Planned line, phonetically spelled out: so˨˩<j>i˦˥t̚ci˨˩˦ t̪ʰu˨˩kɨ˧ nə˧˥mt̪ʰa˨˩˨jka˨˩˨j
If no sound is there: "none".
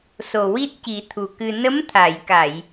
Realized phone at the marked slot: w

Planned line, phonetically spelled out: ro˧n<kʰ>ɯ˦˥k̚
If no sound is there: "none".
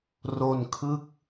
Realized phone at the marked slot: kʰ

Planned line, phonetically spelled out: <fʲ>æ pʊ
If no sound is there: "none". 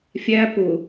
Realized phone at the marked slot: fʲ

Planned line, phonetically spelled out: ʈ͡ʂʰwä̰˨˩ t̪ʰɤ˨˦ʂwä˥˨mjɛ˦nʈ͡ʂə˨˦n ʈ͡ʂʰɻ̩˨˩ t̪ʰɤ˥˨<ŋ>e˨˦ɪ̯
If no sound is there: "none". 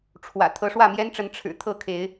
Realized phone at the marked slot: kʰ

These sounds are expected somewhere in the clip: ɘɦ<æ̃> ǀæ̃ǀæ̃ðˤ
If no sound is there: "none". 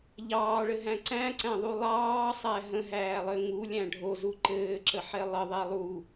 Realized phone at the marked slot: æ̃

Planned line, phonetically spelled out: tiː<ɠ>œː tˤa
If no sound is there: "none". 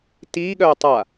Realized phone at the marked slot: ɠ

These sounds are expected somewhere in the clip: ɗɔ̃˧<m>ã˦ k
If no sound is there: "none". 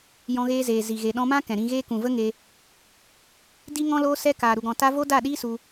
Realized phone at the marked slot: m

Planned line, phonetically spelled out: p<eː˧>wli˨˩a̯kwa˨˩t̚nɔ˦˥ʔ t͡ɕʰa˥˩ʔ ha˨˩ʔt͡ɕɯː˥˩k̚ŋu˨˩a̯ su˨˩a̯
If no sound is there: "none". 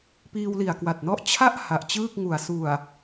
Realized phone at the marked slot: iː˧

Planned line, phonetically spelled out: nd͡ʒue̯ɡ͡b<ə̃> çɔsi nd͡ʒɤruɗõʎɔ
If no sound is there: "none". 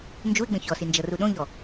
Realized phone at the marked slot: ə̃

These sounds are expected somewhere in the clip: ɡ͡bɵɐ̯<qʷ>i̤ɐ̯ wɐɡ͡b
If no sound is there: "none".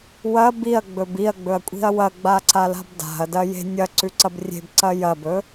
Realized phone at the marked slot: kʷʼ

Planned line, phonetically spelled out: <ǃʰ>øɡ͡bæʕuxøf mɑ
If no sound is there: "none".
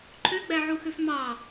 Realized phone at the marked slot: ǃʰ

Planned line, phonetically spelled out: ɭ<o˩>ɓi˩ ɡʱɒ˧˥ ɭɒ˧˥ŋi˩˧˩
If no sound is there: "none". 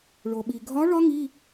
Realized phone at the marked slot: o˩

